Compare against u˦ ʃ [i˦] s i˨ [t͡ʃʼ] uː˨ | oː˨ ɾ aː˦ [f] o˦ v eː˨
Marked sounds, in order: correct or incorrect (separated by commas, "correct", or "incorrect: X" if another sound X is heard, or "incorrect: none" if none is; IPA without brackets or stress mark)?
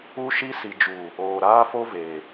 correct, incorrect: d͡ʒ, correct